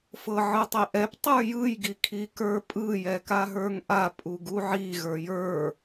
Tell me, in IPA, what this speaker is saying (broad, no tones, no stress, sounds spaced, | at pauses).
f ɤ ʕ ɯ tˤ e ʔ ɛ p tˤ ə˞ j ɯ j ɡ i kʰ i k ə˞ pʼ ɯ j ɛ k a ɦ ə˞ ŋ ʔ a pʼ u ɡ u ʕ i ɣ ə˞ j ə˞